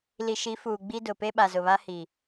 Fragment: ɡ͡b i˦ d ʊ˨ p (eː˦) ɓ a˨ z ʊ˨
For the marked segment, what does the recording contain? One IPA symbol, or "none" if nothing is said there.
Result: e˦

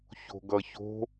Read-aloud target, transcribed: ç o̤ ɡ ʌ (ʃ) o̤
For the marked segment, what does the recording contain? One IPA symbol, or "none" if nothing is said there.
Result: ç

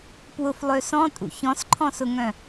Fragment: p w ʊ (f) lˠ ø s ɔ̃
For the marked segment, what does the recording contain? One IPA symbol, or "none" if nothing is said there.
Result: f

